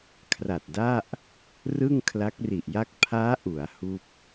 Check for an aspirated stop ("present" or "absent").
present